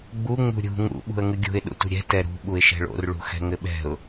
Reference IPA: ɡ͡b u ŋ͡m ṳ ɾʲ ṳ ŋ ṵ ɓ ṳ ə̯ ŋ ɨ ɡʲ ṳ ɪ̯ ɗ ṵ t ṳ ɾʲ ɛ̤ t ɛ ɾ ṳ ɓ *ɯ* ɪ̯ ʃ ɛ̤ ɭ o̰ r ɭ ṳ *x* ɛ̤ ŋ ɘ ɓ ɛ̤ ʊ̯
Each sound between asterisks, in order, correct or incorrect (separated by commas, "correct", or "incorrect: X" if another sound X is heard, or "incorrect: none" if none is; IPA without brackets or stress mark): incorrect: u, correct